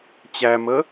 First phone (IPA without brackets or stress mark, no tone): t͡ɕ